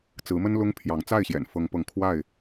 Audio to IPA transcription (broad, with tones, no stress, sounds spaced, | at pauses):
t͡s ɹ̩˨˦ m ə˦ n l ʊ˦ ŋ pʰ j ɑ˨˦ ŋ t͡s a˥˨ ɪ̯ ɕ j ɛ̰˨˩ n f ɤ˨˦ ŋ p ɤ˨˦ ŋ kʰ w a˥˨ ɪ̯